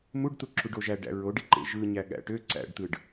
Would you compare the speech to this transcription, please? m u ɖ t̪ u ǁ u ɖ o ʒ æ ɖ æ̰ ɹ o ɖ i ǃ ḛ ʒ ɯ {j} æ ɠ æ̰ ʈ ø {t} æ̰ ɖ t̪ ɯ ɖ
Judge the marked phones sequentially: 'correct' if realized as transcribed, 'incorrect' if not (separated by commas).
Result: incorrect, incorrect